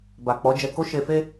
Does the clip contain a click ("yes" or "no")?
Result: no